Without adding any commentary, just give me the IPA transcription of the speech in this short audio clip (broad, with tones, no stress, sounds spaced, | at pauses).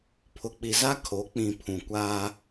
pʰ ʊ˨ k͡p i˨ z a˦ kʰ o˨˦ k͡p ĩ˨ pʰ ũ˨ kʷ aː˦